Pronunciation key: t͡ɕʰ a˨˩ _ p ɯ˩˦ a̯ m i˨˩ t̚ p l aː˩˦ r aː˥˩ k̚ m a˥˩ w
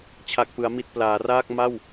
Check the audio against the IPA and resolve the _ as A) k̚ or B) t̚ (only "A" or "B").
A